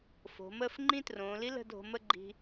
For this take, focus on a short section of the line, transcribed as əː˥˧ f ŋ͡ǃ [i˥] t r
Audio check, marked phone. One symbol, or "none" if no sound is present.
ĩ˥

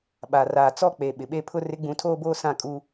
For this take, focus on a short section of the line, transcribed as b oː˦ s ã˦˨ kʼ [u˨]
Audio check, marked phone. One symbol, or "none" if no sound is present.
u˦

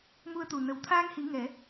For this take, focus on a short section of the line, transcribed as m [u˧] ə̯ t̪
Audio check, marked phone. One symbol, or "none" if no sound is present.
u˧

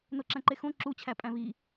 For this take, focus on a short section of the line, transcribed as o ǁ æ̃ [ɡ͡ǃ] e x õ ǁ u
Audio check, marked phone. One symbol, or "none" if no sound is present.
ǃ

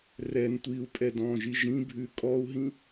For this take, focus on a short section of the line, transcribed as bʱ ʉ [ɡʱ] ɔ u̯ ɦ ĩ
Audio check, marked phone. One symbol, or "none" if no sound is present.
kʼ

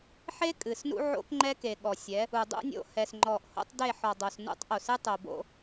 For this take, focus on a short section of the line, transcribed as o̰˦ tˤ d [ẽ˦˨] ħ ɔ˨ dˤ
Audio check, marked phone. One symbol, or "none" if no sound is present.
e˦˨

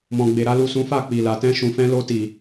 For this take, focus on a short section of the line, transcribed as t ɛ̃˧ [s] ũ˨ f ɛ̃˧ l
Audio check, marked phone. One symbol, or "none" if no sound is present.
ʃ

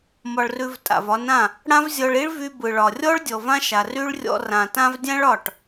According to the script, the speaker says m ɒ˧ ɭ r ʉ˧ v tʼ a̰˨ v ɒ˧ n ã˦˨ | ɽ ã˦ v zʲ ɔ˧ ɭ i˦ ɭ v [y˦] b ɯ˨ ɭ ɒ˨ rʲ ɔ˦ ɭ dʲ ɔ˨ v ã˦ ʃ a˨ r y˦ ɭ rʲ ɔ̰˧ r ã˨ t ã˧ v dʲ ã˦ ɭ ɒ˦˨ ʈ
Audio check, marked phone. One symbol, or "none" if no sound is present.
y˧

